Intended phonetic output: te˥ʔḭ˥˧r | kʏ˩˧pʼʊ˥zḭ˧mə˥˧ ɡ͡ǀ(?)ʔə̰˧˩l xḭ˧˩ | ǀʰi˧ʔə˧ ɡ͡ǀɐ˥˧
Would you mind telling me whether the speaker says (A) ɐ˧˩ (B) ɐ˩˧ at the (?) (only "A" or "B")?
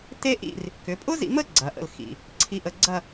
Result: B